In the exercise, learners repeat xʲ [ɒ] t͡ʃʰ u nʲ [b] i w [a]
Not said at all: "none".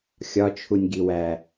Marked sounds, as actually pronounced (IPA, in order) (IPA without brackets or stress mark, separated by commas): ɒ, ɡ, æ